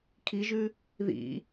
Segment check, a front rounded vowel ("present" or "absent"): absent